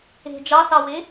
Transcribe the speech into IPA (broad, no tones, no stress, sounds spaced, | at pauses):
e̤ d͡ʒ ɑ s ɑ w e